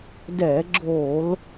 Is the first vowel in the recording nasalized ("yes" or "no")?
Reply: no